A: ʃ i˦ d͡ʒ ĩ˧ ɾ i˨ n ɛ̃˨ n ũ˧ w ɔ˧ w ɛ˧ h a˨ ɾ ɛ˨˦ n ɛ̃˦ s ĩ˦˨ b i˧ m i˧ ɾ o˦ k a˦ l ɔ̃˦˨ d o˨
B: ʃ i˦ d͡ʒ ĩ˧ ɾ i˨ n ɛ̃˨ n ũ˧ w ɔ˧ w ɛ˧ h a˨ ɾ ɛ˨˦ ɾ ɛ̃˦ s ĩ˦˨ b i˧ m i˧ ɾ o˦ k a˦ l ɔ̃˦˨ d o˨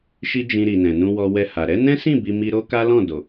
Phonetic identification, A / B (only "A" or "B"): A